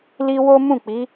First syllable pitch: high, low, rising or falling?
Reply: high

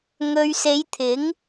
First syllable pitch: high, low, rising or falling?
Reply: low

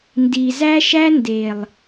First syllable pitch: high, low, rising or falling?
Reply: low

